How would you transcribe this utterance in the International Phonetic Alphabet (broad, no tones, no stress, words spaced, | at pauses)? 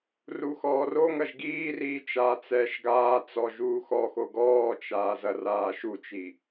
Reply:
ruxɔːroŋɐʒ ɡiːriː t͡ʃaːt͡sɛːʃɡaːt͡sɔ ʒuːxɔxoɡ ɔːt͡ʃaː zɐraːʃut͡ʃi